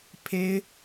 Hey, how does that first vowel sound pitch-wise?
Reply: high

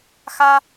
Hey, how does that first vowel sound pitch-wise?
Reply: high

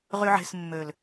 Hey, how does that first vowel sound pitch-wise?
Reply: high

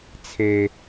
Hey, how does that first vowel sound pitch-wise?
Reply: high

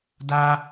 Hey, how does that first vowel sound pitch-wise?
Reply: high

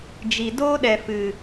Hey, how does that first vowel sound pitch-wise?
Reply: low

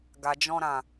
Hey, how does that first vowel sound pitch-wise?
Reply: low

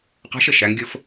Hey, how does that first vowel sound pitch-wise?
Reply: rising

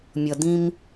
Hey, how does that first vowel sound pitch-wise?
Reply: low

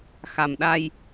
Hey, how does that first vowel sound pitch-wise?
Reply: low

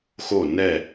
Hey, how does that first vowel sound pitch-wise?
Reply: falling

